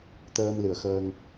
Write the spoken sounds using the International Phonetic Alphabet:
t̪ əː˧ m l ɨ˨˩ ə̯ x əː˧ ŋ

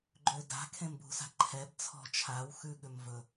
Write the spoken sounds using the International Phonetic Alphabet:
ɡ͡ǃ ø d a̤ kʰ ẽ m b ṳ s a̤ ǃʰ ɛ b t͡sʰ ɔ̤ t͡ʃʰ a w x ʉ ɠ ʏ m v ɵ

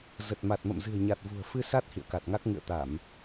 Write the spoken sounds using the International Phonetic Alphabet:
z ə˨˩ t̚ m a˨˩ t̚ m ə̰˧˨ m z ɨ̤˨˩ ə̯ ɲ a˨˩ t̚ v ṳ˨˩ ə̯ f ɨ˧ s a˦˥ t̚ h ḭ˧˨ ə̯ k a˨˩ t̚ ŋ a˦˥ k̚ ŋ ɨ̰˧˨ ə̯ t̪ a˧˩˨ m

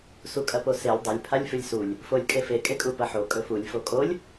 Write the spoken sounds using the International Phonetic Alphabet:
s u kʼ ɐ p o s e lʲ dˤ ɵ lʲ pʰ a lʲ f ʉ lʲ s u lʲ | f o lʲ kʼ e f e kʼ e kʼ u p ɐ ħ o kʼ ɵ f u lʲ f o kʼ o lʲ

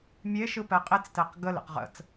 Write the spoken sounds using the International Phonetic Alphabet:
mʲ e ʃ ɯ p ɛ qʼ e t͡s t ɛ q ɡ ə l ɛ̰ q ʁ ə̰ t͡s

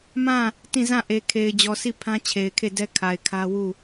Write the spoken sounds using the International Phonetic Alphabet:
m ã˦˨ | t ĩ˦˨ z ã˦˨ ʔ e˨ kʰ e˨ ɪ̯ d͡ʑ ɔ˨ sʰ i˦˨ pʰ ã˦ t͡ɕʰ e˨ ɪ̯ kʰ e˦˨ d ɛ˦ kʰ a˨ ɪ̯ kʰ ä˦ w u˦˨

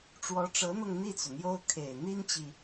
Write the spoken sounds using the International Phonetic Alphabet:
ʈ͡ʂ w ɔ˧˥ ʈ͡ʂ ɤ˧˥ n̪ ɤ˧ ŋ n̪ i˥˩ t͡s u˩ n̪ j o˥ ʊ̯ kʰ e˨˩ ɪ̯ n̪ i˥ n t͡ɕ i˨

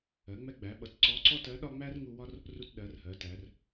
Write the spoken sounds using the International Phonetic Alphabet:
ɜ˩˧ ŋ͡m ɛ˧ ɡ͡b æ˩˧ ɓ ʌ˩ t ǀ ɔ˧˥ ǀ ɔ˥ t ɜ˧˥ ɗ ɒ˥ ŋ͡m æ˥ r ŋ u˧ w ɒ˥ r | r u˧ t ɗ ɜ˩˧ r h ɜ˩˧ t æ˩˧ r

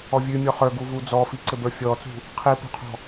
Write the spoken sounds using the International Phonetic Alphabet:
ɔ vʲ ʉ mʲ ɔ χ ə˞ ɡ u v u d͡z ɔ f i ǀ ɘ b ə˞ fʲ ɔ t͡s ṳ | qʰ i p ṳ qʰ ɔ̤

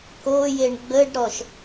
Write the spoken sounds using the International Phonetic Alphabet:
k o j e ɳ ɡ͡b ə ɖ ɾ ɔ ʃ

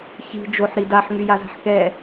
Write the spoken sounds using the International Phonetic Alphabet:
ç i̤ d͡ʒ o ħ ɾ i d a ħ ŋ y j a z a̤ ħ k ɛ

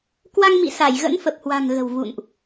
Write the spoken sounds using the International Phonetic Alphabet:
k w a˧ ŋ m ḭ˧˨ s a˧˩ j ɣ ə̰˧˥ n f ə˨˩ p̚ h w a̤˨˩ ŋ ɣ ə̤˨˩ w v ṵ˧˨ n ʔ

